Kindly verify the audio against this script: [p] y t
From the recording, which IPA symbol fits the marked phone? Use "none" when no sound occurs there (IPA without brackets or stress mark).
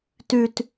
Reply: t